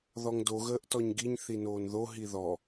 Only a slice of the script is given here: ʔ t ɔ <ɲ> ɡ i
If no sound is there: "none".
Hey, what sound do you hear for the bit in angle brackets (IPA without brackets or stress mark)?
ɲ